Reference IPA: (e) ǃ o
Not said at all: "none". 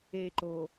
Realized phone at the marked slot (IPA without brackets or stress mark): e